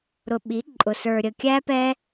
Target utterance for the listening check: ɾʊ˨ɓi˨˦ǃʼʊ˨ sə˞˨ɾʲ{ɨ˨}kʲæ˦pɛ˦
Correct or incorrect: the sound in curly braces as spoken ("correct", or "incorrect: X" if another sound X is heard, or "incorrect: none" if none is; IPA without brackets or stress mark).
incorrect: ə˨